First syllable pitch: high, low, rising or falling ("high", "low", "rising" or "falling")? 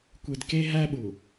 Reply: low